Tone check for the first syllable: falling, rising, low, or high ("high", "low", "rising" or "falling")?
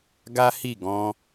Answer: high